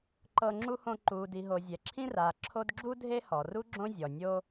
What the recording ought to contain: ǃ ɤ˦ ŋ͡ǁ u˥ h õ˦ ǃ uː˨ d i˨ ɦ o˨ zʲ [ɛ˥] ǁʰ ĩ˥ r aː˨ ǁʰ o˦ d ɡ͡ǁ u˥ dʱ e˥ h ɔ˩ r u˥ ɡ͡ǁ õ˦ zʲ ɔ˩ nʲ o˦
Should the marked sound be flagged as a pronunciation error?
yes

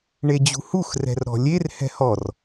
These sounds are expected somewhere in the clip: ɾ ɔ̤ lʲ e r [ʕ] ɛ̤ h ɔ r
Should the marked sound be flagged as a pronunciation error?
yes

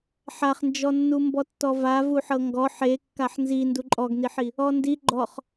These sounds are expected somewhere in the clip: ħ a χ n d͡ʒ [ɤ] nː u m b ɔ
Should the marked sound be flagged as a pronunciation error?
yes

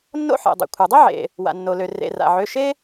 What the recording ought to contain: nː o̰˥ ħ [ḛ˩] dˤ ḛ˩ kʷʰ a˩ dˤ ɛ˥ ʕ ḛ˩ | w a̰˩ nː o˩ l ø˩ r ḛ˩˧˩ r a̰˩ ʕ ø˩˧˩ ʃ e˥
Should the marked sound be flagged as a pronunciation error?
no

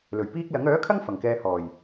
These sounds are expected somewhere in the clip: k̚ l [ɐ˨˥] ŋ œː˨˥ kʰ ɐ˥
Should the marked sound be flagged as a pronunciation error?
no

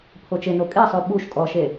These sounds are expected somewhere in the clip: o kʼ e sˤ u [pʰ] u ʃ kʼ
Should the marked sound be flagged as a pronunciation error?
yes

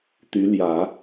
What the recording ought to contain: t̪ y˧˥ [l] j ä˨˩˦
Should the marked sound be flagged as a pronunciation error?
no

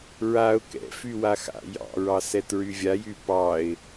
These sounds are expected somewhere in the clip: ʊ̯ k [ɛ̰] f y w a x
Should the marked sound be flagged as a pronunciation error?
no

